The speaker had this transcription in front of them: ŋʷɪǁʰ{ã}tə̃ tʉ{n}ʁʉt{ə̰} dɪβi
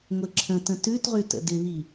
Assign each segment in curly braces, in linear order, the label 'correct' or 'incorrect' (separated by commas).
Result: incorrect, incorrect, correct